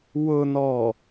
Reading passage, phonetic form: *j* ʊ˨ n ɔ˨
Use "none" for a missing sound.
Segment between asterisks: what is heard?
w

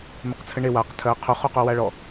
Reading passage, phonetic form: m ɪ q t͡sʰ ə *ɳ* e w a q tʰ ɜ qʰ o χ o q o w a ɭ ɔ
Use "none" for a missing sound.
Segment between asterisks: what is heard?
ɳ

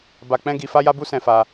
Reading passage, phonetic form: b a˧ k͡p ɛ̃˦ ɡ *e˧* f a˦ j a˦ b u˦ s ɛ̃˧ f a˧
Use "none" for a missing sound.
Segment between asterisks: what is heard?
i˧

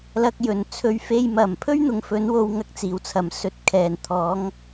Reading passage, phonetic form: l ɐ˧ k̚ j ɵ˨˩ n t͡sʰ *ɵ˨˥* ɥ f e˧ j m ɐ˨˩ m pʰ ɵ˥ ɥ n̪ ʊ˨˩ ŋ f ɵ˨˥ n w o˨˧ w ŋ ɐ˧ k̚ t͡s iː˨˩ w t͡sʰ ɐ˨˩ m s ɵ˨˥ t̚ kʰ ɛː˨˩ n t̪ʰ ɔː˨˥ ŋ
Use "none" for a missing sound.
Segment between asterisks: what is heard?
ɵ˧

